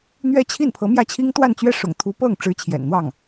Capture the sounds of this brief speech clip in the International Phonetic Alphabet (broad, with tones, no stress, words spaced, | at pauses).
n̪ɥɛ˥t͡ɕʰi˥˩npʰɤ˧˥ mjä˥˩t͡ɕʰi˥ŋ t̪wa˥˧nt͡ɕɥɛ˥˩ʂʊ̰˨˩ŋt̪ʰu˧˥ pɤ˥˩ŋʈ͡ʂɻ̩˧˥ t͡ɕʰjɛ̰˨˩nn̪wɑ˥˩ŋ